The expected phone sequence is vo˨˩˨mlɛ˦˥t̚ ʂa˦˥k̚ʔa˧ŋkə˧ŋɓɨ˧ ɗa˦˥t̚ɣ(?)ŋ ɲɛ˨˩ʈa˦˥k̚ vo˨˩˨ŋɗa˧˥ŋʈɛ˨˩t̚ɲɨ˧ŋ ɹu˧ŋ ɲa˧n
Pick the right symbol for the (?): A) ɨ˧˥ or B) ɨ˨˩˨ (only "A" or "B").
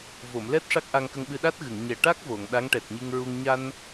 B